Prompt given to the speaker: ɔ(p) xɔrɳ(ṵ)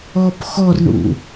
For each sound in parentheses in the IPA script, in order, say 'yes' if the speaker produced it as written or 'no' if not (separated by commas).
yes, yes